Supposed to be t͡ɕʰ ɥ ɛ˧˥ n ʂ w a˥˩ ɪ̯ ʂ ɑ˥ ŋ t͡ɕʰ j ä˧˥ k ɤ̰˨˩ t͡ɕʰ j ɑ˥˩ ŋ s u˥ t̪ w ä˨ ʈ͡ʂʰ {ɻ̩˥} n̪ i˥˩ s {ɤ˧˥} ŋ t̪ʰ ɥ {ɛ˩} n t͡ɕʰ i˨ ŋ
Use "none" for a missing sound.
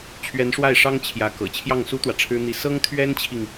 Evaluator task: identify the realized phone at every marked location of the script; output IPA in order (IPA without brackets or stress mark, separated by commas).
ɻ̩˥, ɤ˥, ɛ˥